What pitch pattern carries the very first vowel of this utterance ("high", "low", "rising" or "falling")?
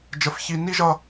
high